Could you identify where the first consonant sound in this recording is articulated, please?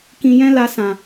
velar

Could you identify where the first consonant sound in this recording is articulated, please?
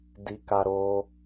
alveolar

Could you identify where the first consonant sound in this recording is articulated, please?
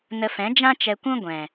alveolar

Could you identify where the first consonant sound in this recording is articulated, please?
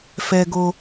labial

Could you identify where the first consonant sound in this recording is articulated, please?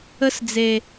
alveolar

